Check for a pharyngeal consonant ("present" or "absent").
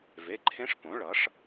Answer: absent